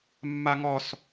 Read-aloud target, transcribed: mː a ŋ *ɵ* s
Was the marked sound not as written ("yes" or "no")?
yes